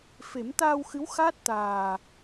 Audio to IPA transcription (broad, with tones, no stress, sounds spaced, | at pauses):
f e˨˩˦ m t̪ aː˧ w x ɨ˧˥ w x aː˦˥ t̚ t̪ aː˨˩